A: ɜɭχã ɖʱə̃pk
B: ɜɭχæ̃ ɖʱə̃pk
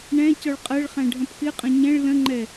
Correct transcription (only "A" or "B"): B